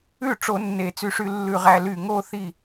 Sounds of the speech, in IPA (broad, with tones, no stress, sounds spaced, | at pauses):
ʉ˥˩ ʈ͡ʂ o˨˩˦ nː e˨˩˦ t͡s y˧˩ ʂ y˥˧ lː ʉ˥˩ ʁ æ˥˧ l y˧˩ ŋ o˥˧ θ i˥˩